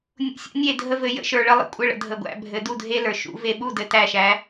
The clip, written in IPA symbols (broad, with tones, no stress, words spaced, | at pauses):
nʲṵ˨˥sʲṵ˦ nʲe˥˩dʱə˦vɘ˩˧ jə̰˦ʃə˞˧˩˧ ɭə˨˥lˠə̰˥˩kʷʼɘ˥˩ɭə̰˩˧ dʱə˨˩ɡʷæ̰˩˧ bʱɘ˩˧du˥˩dʱe˦lə˞˨˩ ʃṵ˧˩˧ve˧˩˧ɓu˥˩ dɘ˨˩ tæ˥˩ʃæ˩˧